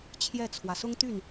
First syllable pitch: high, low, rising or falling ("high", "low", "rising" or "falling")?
falling